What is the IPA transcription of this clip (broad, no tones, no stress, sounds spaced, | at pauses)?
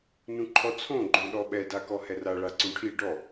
n ũ ǃʰ ɔ t͡sʰ õ ɡ͡ǃ õ ɗ ɔ ɓ ɛ d a k ɔ h ɛ r a ɭ a ǀ ũ ʈʰ i ɖ ɔ